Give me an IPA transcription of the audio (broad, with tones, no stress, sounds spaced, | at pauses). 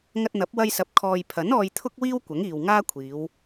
ŋ ɐ˧ t̚ n̪ ɐ˨˥ p̚ w ɐ˥ j s ɐ˧ p̚ kʰ ɔː˨ j pʰ ɐ˨˥ n ɔː˧ j t̪ʰ ʊ˥ k̚ w iː˥ w kʷ ɐ˨˥ ŋ iː˨ w ŋ aː˥ kʷʰ iː˨˧ w